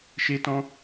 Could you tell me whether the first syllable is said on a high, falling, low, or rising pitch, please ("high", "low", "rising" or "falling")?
high